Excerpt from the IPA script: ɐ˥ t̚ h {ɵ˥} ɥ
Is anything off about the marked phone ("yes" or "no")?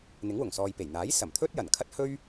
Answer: no